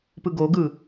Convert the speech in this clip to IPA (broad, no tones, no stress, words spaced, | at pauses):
pɯɡoɡɯ